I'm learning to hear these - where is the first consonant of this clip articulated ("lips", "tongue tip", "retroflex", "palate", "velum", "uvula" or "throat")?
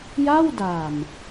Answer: palate